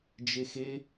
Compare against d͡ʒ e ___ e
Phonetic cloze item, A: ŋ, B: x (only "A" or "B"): B